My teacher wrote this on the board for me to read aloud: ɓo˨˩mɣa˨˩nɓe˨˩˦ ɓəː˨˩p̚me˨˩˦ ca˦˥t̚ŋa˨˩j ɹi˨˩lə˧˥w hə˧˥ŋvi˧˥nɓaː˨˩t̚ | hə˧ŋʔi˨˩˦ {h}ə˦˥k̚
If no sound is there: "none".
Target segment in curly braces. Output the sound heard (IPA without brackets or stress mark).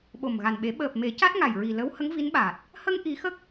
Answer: x